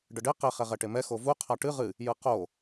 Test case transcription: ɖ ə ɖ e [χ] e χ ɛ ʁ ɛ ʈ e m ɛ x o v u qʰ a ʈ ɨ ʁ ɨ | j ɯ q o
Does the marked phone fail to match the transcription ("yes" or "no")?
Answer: yes